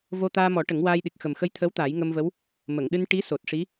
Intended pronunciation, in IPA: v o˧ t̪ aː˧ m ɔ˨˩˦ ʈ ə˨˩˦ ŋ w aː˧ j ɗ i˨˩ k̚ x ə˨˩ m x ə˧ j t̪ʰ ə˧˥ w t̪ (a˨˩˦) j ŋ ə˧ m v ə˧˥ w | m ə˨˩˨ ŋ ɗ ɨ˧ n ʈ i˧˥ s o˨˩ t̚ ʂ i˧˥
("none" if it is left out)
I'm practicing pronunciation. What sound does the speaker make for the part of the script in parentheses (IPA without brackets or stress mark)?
a˨˩˦